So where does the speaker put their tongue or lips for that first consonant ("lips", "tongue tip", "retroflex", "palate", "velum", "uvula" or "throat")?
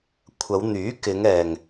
velum